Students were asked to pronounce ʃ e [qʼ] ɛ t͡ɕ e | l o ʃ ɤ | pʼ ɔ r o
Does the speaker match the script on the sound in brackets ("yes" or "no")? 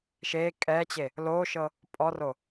no